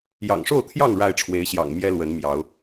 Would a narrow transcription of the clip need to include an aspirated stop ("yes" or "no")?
yes